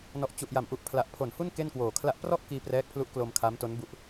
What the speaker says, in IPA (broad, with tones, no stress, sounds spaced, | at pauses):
n ɔ˨˩ ʔ t͡ɕ u˨˩ ʔ j a˩˦ m ʔ u˨˩ ʔ pʰ l a˨˩ ʔ pʰ o˩˦ n h u˥˩ n k e˥˩ n k w oː˨˩ kʰ l a˥˩ ʔ p r ɔ˥˩ ʔ k iː˧ p r ɛː˦˥ k̚ pʰ l u˦˥ ʔ k l o˧ m kʰ a˦˥ m t o˦˥ n b u˦˥ ʔ